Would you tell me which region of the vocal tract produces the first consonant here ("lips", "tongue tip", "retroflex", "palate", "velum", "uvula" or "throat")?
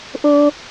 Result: throat